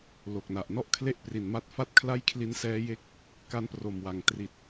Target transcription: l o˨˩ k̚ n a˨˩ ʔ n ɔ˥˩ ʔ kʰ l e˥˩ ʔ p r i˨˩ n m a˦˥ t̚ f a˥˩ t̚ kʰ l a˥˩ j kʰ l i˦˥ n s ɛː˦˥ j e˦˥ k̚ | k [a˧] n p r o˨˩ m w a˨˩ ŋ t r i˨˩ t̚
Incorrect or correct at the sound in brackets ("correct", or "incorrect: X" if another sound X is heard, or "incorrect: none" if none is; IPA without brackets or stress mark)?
incorrect: a˦˥